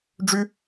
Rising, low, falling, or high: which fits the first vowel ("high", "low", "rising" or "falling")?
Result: high